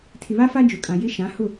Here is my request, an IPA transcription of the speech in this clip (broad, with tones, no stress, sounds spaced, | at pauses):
tʰ ɪ˨ β a˦ f a˦ d͡ʒ ʊ˨ kʼ ã˨ j ɪ˦ ʃ ã˨˦ h ʊ˦˨